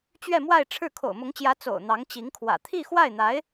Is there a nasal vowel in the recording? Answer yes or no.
no